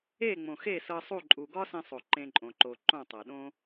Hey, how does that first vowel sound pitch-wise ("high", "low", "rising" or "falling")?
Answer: falling